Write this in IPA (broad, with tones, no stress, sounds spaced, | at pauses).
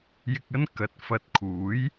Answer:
j ɪ˧ k̚ ɐ˥ n k ɐ˨ t̚ f ɐ˧ t̚ kʰ uː˨˥ j